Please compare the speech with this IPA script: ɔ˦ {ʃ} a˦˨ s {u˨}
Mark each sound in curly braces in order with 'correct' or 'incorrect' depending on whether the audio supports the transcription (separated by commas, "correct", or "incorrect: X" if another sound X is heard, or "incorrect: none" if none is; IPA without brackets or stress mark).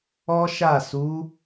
correct, incorrect: u˨˦